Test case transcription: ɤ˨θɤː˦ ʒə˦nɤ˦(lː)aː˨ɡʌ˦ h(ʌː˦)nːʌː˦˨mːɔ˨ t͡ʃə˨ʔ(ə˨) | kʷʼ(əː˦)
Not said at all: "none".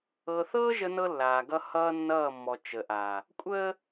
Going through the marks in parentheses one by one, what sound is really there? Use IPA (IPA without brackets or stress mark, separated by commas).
lː, ʌː˦, a˨, əː˦